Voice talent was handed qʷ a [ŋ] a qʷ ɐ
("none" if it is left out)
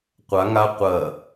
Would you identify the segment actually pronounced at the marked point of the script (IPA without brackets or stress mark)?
ŋ